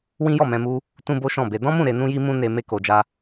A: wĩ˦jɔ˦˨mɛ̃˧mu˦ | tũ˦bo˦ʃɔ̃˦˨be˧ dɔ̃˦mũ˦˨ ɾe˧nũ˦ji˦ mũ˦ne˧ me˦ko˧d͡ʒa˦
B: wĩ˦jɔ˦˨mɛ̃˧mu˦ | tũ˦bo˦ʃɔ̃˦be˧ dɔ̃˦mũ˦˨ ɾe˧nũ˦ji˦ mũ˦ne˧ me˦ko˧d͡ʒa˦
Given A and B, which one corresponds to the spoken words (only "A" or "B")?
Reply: A